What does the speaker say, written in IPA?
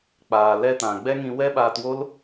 k͡p aː˨ l ɛ˧ t ã˨ ɡ͡b ɛ˦ ŋ ĩ˧ w ɛ˦ ɓ aː˧ t w o˦ l

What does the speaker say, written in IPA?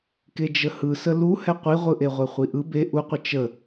k e d͡ʒ ə h ɯ s ə l u h ɛ qʷ i ʁʷ ɯ ʔ e ʁʷ e χʷ i ʔ ɯ b e ʔ u qʷ ə t͡ʃ ə

